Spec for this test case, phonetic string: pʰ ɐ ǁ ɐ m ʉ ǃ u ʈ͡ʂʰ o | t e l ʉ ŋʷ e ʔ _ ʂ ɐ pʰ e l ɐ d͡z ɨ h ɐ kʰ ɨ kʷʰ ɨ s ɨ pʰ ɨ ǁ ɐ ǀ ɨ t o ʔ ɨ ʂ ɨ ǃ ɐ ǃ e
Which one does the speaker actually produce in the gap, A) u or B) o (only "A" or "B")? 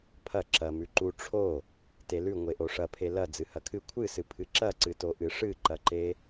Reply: B